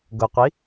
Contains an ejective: no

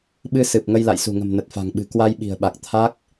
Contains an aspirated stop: yes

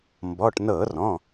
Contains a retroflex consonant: yes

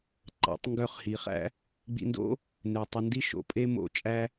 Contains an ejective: yes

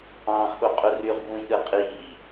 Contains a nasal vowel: yes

